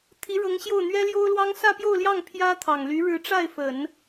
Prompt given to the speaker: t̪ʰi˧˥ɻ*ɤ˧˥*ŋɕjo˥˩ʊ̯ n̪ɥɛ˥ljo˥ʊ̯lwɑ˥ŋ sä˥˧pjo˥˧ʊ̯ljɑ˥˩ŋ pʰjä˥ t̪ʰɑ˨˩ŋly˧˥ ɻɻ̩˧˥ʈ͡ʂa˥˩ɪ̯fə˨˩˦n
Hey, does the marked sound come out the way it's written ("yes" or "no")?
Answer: yes